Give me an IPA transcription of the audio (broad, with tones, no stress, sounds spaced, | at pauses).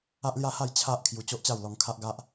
a˦ ʔ l j a˦ h a˥˧ j t͡ɕʰ a˦ ʔ kʰ j u˧ t͡ɕ o˦ ʔ t͡ɕ a˥˧ w l ɔ˧ ŋ kʰ a˦ ʔ ɡ a˦ ʔ